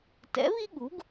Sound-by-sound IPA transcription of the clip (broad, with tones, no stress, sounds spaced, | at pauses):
t ɛ̰˩˥ β i˥ ɠ u˩˥ ɡ